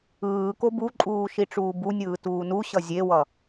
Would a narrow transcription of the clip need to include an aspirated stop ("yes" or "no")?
no